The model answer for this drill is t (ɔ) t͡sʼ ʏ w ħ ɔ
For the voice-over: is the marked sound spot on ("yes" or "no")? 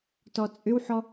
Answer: yes